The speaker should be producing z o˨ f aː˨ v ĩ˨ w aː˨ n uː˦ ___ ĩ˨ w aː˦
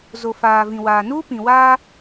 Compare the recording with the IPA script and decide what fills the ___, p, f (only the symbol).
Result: p